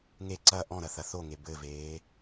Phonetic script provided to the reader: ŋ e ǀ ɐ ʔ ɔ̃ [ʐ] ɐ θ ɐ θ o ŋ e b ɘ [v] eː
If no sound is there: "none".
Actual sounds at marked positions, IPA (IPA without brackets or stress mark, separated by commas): ɾ, v